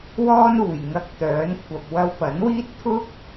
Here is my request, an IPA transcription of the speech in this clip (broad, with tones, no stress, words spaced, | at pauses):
wɔː˥nuː˨˩j ŋɐ˧k̚ t̪œː˨˥n kʷʰɐ˨p̚ wɐ˧wpɐ˨˥nwiː˥t̚ t̪ʰʊ˥k̚